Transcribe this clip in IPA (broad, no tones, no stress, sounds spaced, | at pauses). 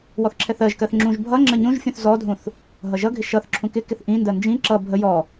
w ɔ θ ǁʰ ɛ θ ɜ ʒ k ɜ θ ŋ͡ǁ ũ ʒ bʱ ʌ ŋ͡ǁ ə ɲ ũ ʒ fʲ ũ θ z ɔ dʱ ũ θ | ɦ ʌ ʒ ʌ ɡʱ ɪ ʃ ʌ θ ǁʰ ũ k ɪ k ɪ θ ʔ ĩ n d ɜ n d͡ʒ ĩ ǁ ʌ bʱ ə j ɔ